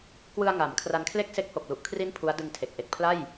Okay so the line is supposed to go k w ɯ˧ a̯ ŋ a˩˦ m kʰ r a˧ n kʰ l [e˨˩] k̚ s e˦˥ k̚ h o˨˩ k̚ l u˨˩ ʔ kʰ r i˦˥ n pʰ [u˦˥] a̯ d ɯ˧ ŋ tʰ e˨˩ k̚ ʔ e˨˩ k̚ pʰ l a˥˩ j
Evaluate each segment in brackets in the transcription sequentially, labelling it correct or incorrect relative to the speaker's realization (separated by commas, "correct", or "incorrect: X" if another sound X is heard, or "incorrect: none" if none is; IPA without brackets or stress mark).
incorrect: e˥˩, correct